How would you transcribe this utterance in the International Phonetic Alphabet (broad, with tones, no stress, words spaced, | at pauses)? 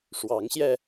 ʂwɑ˨˦ŋɕjɛ˧